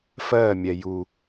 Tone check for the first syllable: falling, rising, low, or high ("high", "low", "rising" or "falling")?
falling